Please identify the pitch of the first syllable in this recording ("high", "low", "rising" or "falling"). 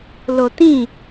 low